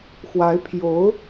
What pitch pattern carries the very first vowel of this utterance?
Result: rising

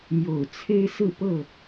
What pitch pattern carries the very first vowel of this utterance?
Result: low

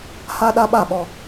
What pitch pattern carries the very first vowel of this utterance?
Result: high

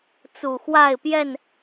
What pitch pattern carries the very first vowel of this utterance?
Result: low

